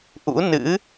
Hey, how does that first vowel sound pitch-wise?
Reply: rising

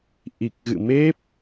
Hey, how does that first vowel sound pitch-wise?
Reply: low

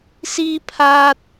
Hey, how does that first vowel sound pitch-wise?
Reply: high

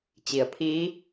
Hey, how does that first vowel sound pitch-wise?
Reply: low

